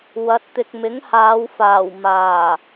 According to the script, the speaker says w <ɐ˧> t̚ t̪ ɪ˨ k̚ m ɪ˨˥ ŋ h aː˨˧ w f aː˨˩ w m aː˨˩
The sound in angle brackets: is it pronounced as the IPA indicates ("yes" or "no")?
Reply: no